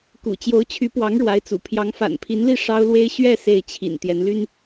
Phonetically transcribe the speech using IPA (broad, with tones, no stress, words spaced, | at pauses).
kṵ˨˩ t͡ɕjo˧˥ʊ̯t͡ɕʰy˧˥pwɑ˧˥ŋ ɻwa˧˥ɪ̯t͡sṵ˨˩ pʰjɑ˧˥ŋfa̰˨˩npʰi˧˥nli˥˩ ʂɑ˥ʊ̯lwe˥ɪ̯ ɕɥɛ˥˧ se˥˩ɪ̯t͡ɕʰḭ˨˩n t̪jɛ˧˥nly˥n